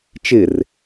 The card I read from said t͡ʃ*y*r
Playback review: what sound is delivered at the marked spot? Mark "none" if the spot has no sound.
ɪ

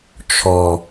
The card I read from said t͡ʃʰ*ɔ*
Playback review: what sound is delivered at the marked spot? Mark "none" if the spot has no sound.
ɔ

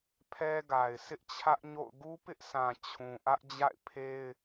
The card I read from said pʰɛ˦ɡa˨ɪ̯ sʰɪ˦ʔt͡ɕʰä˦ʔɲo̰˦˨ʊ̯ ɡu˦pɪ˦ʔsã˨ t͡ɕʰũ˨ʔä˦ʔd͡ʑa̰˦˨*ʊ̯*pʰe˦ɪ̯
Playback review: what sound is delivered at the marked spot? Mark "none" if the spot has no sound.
ɪ̯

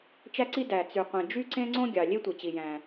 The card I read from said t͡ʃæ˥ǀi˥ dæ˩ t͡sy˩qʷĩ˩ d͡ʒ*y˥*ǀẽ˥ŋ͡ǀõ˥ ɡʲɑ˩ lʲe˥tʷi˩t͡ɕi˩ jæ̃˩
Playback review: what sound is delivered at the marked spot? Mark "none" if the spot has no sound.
y˥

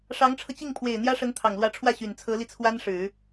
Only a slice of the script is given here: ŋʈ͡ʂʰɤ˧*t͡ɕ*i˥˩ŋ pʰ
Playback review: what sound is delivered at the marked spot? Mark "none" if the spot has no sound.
t͡ɕ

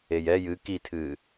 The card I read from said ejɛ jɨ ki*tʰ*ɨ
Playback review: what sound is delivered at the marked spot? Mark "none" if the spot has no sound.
tʰ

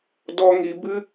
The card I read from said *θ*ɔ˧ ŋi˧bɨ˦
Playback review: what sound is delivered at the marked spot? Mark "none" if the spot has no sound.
d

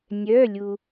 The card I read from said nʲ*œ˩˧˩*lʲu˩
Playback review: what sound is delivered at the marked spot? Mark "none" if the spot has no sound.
œ˩˧˩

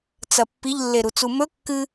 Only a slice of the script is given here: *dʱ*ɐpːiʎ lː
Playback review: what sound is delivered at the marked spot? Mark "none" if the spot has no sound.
t͡s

